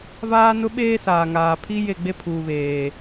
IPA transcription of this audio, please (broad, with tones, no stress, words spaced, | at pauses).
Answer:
vaː˦nʊ˦ɓeː˦ saː˨ŋaː˨pʰi˦ je˦˨ɡ͡be˦pʰuː˨ βeː˨